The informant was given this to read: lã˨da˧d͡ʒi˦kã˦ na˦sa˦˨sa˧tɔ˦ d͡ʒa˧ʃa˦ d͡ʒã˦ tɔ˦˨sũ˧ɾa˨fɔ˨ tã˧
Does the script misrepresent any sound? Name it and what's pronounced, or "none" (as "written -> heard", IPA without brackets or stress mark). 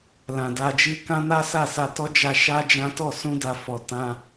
ɾ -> d